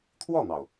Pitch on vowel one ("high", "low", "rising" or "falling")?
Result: falling